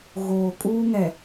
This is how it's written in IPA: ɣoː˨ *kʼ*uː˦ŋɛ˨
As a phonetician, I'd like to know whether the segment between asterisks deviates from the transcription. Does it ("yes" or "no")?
no